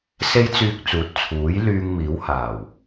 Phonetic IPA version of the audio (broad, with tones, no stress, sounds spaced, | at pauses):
s e˧ j t͡s yː˨ k̚ t͡s uː˨˥ t̚ t͡sʰ uː˨˥ j l yː˧ ŋ m iː˨˥ w h aː˨˩ w